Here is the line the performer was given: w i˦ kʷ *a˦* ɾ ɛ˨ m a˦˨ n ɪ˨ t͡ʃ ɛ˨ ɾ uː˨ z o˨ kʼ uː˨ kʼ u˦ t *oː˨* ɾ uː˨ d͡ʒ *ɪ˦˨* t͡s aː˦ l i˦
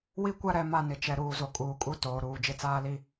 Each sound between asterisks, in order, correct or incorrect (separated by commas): correct, correct, correct